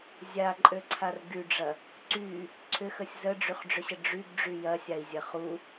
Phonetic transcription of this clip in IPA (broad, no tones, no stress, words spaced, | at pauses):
zʲaǃʼøǀʰar ɡyɖ͡ʐɐ | ǀy | ǀʰʏxəsʲ zəɖ͡ʐyχɖ͡ʐʏɕə ɖ͡ʐyɡɖ͡ʐy jɐsʲai̯zʲɐ χu